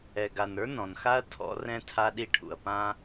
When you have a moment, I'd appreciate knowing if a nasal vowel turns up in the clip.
yes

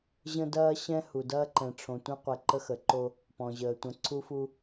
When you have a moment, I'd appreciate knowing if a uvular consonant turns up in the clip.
yes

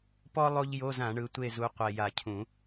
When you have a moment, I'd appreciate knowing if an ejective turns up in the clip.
no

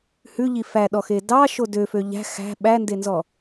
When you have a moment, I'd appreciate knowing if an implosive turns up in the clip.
yes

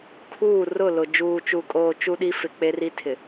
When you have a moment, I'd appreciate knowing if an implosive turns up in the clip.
yes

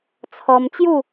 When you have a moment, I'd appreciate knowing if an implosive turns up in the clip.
no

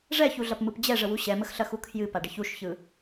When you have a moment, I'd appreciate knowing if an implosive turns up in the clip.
no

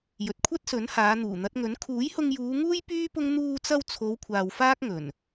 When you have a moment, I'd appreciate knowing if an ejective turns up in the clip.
no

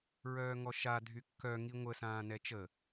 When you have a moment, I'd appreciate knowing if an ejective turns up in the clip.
no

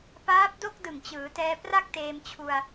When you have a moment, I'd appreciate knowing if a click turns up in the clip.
no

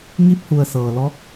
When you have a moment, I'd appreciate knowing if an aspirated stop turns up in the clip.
no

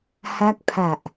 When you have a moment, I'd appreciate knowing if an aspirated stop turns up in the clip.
yes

